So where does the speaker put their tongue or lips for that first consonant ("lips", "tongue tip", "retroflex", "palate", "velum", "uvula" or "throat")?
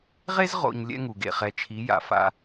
uvula